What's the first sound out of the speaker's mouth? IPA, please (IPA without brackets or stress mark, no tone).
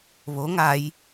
β